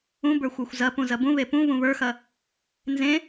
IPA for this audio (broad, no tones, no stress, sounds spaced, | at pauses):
ũ b ə˞ xʷ ə˞ xʷ z ɐ p ũ z ɐ b ũ β e p ũ β ũ β ə˞ x ɐ | n z ẽ